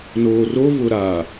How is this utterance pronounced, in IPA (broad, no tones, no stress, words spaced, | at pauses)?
noːrovʊ ɾa